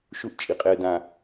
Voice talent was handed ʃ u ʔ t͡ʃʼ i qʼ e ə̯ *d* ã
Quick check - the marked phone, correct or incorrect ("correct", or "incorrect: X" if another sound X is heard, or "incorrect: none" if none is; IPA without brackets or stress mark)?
correct